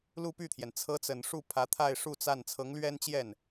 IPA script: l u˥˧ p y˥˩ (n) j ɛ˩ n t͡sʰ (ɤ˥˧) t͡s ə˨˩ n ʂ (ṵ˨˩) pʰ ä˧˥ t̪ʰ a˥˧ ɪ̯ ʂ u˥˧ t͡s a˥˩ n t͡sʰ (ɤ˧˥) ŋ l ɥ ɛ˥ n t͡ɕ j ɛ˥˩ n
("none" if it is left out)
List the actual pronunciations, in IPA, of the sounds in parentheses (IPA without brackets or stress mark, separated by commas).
t̪ʰ, ɤ˧˥, u˥˩, ɤ˧˥